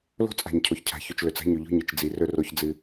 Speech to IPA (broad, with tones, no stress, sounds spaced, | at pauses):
l o̤˦ t͡sʼ a̤˨ ɲ cʰ o˨ ç cʰ a̤˨ ç ʉ˨ t͡ʃ l ɵ˨ t͡s a̤˦ ɲ ʉ˨ ʎ o̤˦ ɲ ɨ˨ t͡ʃ d͡z i˨ r ɵ˦ r o˦ ç d͡z ɨ˦